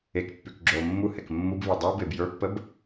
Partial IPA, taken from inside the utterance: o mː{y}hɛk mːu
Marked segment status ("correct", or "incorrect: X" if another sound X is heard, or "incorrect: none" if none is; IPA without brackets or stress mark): incorrect: u